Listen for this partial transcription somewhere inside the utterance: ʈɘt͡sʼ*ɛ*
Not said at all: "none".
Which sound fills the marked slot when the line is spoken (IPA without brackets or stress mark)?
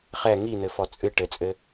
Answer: ɘ